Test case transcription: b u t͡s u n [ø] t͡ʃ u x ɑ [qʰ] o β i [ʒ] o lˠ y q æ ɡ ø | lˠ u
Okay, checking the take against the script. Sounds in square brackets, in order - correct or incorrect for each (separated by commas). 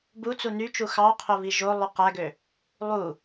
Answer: incorrect, correct, correct